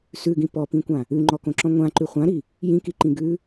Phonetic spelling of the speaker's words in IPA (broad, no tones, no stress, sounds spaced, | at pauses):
s ʉ ɡ ĩ p ɔ p ĩ kʷ ã | ʉ ŋ͡ǃ ɔ k õ ǁ ɔ̃ ŋʷ ã ǃ ʉ χʷ ã ɾ i | j ĩ k i ǃ ĩ ɡ ʉ